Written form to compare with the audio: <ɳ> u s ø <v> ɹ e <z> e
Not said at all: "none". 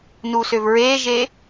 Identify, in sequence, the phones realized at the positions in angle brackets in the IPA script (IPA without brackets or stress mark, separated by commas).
n, v, ʒ